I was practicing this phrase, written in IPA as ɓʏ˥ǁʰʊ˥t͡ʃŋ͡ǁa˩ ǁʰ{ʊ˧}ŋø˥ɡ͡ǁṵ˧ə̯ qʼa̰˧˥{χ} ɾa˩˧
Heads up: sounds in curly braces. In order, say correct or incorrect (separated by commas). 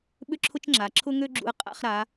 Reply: incorrect, correct